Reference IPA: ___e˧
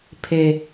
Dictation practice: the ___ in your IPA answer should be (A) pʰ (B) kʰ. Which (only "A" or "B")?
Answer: A